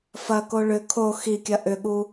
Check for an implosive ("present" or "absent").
present